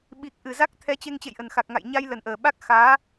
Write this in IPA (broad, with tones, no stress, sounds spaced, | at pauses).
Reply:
ɓ i˨˩ k̚ ʔ ɨ˨˩ z a˦˥ k̚ t̪ʰ ɛ˨˦ t͡ɕ e˧ ŋ t͡ɕ ḛ˧˨ j ʔ ə˨˩ n x a˨˩ k̚ ŋ a̰˧˨ j ɲ a˧ j l ə˨˩ n ʔ əː˨˩ ɓ a˦˥ k̚ x aː˨˦